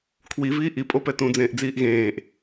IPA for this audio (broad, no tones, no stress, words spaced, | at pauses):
kʰwiviː ʔipʼopɛ tũd͡zẽːʔd͡ziːʔ ɣẽːʔ